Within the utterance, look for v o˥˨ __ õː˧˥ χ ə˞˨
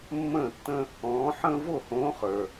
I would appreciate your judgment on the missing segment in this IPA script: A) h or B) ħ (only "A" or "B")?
A